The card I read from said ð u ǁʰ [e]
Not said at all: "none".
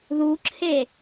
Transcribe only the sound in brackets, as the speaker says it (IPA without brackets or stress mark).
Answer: e